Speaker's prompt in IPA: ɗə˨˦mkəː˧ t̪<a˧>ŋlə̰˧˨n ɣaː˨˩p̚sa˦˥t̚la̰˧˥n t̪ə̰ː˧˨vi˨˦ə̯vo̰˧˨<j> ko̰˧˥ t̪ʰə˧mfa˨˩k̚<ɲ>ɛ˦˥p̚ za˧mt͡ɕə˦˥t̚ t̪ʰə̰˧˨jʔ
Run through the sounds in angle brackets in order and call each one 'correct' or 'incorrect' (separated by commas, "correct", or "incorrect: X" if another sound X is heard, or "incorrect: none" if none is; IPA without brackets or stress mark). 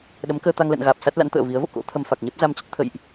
correct, incorrect: none, correct